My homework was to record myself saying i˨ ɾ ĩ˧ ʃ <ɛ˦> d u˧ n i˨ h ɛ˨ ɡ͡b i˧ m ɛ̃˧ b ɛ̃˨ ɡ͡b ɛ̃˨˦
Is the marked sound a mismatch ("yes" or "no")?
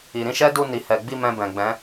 no